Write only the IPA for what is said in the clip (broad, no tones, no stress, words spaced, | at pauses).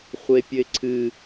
χʷepʲɘɪ̯ǀʰɨ